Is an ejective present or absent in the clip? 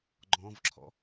absent